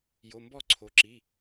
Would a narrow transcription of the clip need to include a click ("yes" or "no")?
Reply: yes